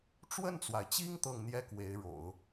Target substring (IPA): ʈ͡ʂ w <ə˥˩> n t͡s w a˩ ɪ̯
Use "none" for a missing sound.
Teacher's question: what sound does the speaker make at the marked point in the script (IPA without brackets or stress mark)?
ə˥˩